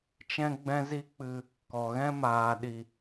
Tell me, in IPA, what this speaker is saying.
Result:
t͡ʃ ɛ̃˦ ɡ͡b ɛ̃˦ z i˦ k͡p ɨ˧ | k ɔ˨ ɣ ɛ̃˦ m aː˨ ɗ i˨

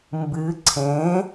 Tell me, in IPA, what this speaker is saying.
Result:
m b ɨ ǀʰ ẽ

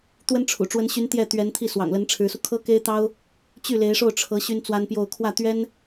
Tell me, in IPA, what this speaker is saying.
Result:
t̪ w ə˥ n ʈ͡ʂʰ ṵ˨˩ ʈ͡ʂ w ə˧˥ n ɕ y˧˥ n t̪ j ɛ˥˩ t̪ ɥ ɛ˧˥ n t̪ʰ i˥˩ s w ɑ̰˨˩ ŋ l ə˧˥ n ʈ͡ʂʰ ɻ̩˧˥ s u˧ kʰ ɤ˥ k e˥ ɪ̯ t̪ ɑ˥ ʊ̯ | t͡ɕ y˥˩ l e˧˥ ɪ̯ ʂ o˥˩ ʊ̯ ʈ͡ʂʰ ɤ˧˥ ɕ y˥ n t͡s w a˥ n p j o˥˧ ʊ̯ kʰ w ä˥˩ t̪ ɥ ɛ˥ n

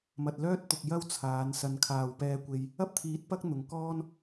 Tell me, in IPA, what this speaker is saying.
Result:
m ɐ˨ t̚ l œː˥ t̚ t̪ ʊ˨ k̚ j ɐ˥ w t͡sʰ aː˨˧ n s ɐ˧ n kʰ aː˨ w p ɛː˧ kʷ e˧ j | ɐ˥ p̚ t̪ʰ iː˨˥ t̚ p ɐ˥ k̚ n̪ ʊ˨˧ ŋ k ɔː˥ n

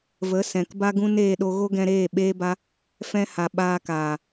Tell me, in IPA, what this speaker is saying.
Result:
v ə˨˦ s ɛ̃˨ k b a˦ ɡ ũ˦ n eː˧ ɗ o˧ ɣ o˦ ɡ ɛ̃˧ ɾ eː˦˨ ɓ eː˦ b a˦ | f ɛ̃˧ h a˨ ɓ aː˧ k aː˨

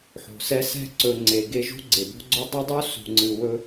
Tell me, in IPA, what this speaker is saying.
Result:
ħ o̤˩ s ɛ˦ s ɛ̤˥ ǀ ɵ˨ ŋ͡ǀ e˩ ɡ e˦ ʒ ṳ˥ ɡ͡ǀ e˩ b o̤˥ ɡ͡ǀ ɵ˥ dˤ ɵ˥ dˤ u˥ s ṳ˨ ŋ͡ǀ ɨ˨ w ɵ˥

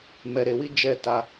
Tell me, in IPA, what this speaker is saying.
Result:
m ɛ˨ ɾ e˨ w i˦ d͡ʒ ɛ˦˨ t a˦

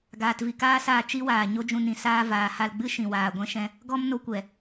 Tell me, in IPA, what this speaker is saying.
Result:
ɡ aː˨ t v i˨ k aː˦ s aː˧ t͡ʃ i˦ w aː˨ ɲ o˦ d͡ʒ ũ˧ n ĩ˧ s aː˧ v aː˨ h a˧ l ɡ͡b ɨ˦ ʃ ĩ˨ w aː˨ ɡʷ ɛ̃˦ ʃ ɛ̃˦ | ɡ ɔ˦ m n o˧ kʷ ɛ˨

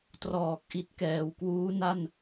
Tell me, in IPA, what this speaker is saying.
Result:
t r ɔː˨˩ k̚ ʔ i˦˥ t̚ k ɛː˩˦ w k w uː˦˥ n a˥˩ n

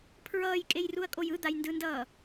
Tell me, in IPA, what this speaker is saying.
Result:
pʰ ɹ ʌː j kʼ e j r u ɐ̯ kʼ o j ɯ d̪ a j n d ɯ n d ʌː

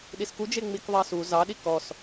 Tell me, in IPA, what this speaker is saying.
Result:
ɗ i s k u d͡ʒ e ŋ͡m i k ðˤ ɑ s u z ɑ ɗ i k ɔ s

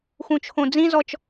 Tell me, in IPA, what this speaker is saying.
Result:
x ũ t͡ʃʰ õ d͡z ĩ z ɔ t͡ʃ

